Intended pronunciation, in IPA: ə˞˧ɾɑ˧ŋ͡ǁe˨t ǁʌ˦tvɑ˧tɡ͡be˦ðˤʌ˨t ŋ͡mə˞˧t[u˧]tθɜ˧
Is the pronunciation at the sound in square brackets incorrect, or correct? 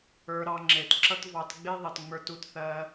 correct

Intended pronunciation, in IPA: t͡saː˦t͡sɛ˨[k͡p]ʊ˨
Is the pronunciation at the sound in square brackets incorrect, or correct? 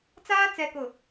incorrect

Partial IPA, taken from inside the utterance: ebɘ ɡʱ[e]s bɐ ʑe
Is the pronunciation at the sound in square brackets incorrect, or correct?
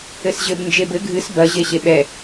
incorrect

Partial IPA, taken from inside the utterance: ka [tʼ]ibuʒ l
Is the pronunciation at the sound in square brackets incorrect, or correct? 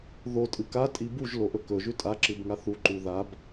correct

